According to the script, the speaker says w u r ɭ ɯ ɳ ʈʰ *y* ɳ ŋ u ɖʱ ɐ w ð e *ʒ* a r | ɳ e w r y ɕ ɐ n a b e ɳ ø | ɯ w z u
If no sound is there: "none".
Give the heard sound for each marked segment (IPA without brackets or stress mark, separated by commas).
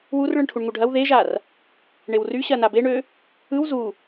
u, ʒ